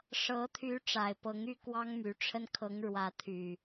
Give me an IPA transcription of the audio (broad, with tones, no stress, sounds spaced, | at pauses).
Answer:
ʂ ɤ˨˦ t̪ʰ y˨˦ ʈ͡ʂ a˨˩ ɪ̯ p ɤ˨˦ ŋ y˥˨ k w ɑ˦ ŋ m y˨˦ ʈ͡ʂʰ ə˦ n kʰ ɤ˨˦ ŋ ɻ w ä˨˦ t̪ʰ y˨˩